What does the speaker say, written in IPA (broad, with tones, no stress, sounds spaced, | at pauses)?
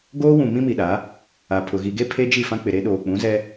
ɡ oː˦ w ũ˨ m ĩ˦ m i˨ ɗ a˨˦ | a˨ pʰ ʊ˨ ɣ i˨ ɡ e˦ pʰ e˦ d͡ʒ i˦˨ f ã˦ k͡p ɪ˨ ɾ e˦ ɗ oː˨ k͡p ũ˨˦ z ɛ˦